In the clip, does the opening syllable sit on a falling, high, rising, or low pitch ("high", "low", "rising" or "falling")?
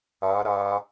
rising